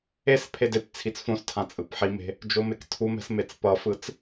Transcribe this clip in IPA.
e s pʰ e d e p t͡sʰ i t͡s f õ s tʰ ã t͡sʼ ɯ p ħ i m e̤ | d͡ʒ o m e k tʰ u m ɛ̤ s m e t͡s p ʌ f ɯ t͡s

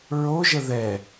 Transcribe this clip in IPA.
ɹ o ʒ ə ð ɛ

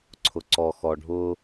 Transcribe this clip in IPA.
ǀʰ ʊ ǀ ɔ x ɔ ɖʱ ʊ

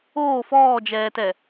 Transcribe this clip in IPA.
oː f ɔː d͡ʒ ɛː t ɛ

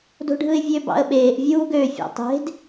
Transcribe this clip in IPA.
d o̤ ɖʱ ɯ ɪ̯ vʲ ø b ɑ̰ ə̯ ɓ eː ʔ vʲ uː ɡ ø fʲ ɑ̰ tˤ e̤ d

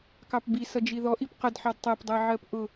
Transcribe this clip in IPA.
k ɑ p b i s ʌ d͡ʒ i ð ɔ ʔ i p q ə d ħ ɑ d tˤ æ p dˤ æ ʕ ɜ p ʔ ʊ

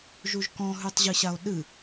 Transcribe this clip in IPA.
ʒ u ʒ k ɔ̃ ɦ ʉ tˤ ʑ ɨ ɕ a o̯ ɗ ɨ

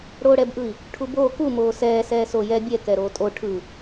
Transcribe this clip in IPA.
ɽ oː ɽ ɛ b ʔ ɯ i̯ | ʈʰ u b oː k u m oː s ɛː s ɛː s o j ɛ bʲ ɛ k ɛ ɾ oː tʼ o ʈʰ ɯ

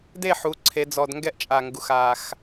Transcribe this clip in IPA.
d e˥˨ ħ u˩˧ ǀʰ e˩˧ d͡z ɔ˨˩ d ŋ ɡ ɛ˦ ʔ t͡ʃʼ a˨˩ ŋ ɡ u˩˧ x a˨˩ x

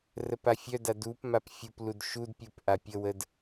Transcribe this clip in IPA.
r ə p a fʲ œ d a d u p m a p fʲ u p l u d ʃ u d pʲ u p ʔ a pʲ ə w ə d

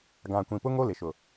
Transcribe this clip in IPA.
ɡ ã˨ kʷ ĩ˨ p ʊ˦ ŋ o˦ l ɪ˨ ʃ ʊ˨

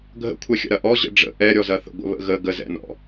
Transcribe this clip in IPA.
ɡʱ ə̰ kʷʰ ɛ xʲ ə̰ ɾ ɐ ʔ ɔ ʑ ə̰ ɖ͡ʐ ə̰ ʔ ɛ ɾʲ ɔ z ɐ θ ə̰ ɡʷ ə̰ β ə̰ ɣ ə ɡ ə z ɛ̰ n ɔ̰

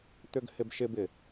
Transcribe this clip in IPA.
t̪ ʏ ɡ h ɪ b ʃ ɪ b ɪ

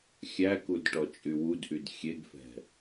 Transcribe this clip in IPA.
xʲ æ k u d ʈ ɔ t͡ʃʼ y w u d ʔ y d xʲ e ɡ f ɛ̤

